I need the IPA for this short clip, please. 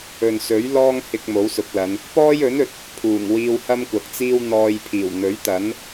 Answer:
ɵ˨ n s ɵ˨˥ ɥ l ɔː˥ ŋ h ɪ˧ k̚ m o˨˥ w s ʊ˨˥ k̚ l ɐ˨˧ n | p ɔː˥ j ɵ˨˥ n ɵ˨ t̚ | pʰ uː˨˩ ŋ w iː˧ w h ɐ˥ m kʷ ɐ˨ k̚ t͡s iː˥ w n̪ ɔː˧ j pʰ iː˨˩ w n̪ ɵ˨˥ ɥ t̪ ɐ˨˥ n

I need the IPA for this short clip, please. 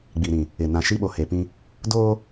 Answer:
ɡ͡b i˨ ɾ ĩ˨ | ɪ˨ n ã˨ ʃ i˦ ɓ o˨ h e˨ p ĩ˦ | d oː˦

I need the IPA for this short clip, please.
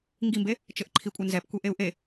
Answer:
ŋ ɡ i m b e | t͡ʃ ɘ ʔ ǃʰ i kʷʼ ɘ n z ɛ p kʷ e ʔ e u̯ ʔ e

